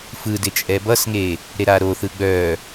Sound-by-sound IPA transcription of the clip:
f ɯ d ɪ t͡ʃʼ ɛ b ʌ s ŋ e | ɾ e ɾ a ɾ o θ ɯ ɡ͡b œ

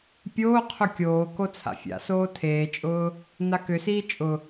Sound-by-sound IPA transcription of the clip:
pʲ oː qʰ ʊ kʲ oː k o t͡sʰ a̰ fʲ a̰ s oː tʰ eː t͡ʃʼ ʊː | n a k ʏ s iː t͡ʃʼ ʊ

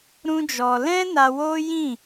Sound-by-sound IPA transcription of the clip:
ɾ ũ˦ d͡ʒ ɔ˧ l ɛ̃˦ n a˧ w o˦ j ĩ˦˨

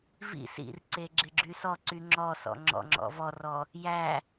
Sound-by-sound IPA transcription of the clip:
v ḭ s ḭ r ǀ e ɡ͡ǁ ɪ ɡ͡ǁ y s ɔ ǀ y ŋ͡ǁ ɔ s ɔ̰ ŋ͡ǁ ɔ̰ ŋ͡ǁ ɔ̰ v ɔ r ɔ | j æ

